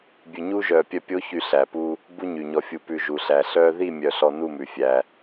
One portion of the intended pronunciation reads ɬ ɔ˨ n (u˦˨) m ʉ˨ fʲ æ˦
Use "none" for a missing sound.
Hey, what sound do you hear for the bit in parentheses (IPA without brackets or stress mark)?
u˦˨